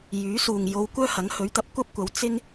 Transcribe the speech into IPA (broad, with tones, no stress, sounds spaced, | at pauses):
j yː˨˥ s uː˨ ŋ j o˧ w kʷ œː˥ h ɐ˨˥ ŋ h ɵ˨˥ ɥ t̪ ɐ˨˥ p̚ kʷ ɐ˥ p̚ kʷ ɐ˨˥ w t͡s ɪ˥ ŋ